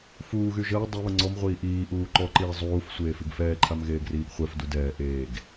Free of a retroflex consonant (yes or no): yes